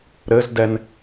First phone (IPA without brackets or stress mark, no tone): ɾ